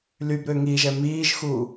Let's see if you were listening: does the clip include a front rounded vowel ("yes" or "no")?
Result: yes